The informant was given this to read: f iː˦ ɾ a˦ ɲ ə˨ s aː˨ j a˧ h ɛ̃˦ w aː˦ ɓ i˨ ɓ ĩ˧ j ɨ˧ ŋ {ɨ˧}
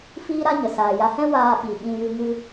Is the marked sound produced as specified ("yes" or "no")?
yes